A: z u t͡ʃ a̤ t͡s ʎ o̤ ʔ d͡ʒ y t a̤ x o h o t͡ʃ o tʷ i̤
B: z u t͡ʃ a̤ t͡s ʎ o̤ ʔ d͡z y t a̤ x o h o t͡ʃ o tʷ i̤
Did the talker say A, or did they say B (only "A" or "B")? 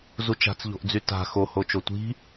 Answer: B